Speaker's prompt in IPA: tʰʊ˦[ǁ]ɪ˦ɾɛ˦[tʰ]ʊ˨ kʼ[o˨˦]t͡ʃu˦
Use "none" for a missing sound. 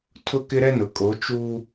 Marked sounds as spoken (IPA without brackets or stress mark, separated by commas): k, n, o˨˦